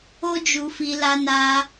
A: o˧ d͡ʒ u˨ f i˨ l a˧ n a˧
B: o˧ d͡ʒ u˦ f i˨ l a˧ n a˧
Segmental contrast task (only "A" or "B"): A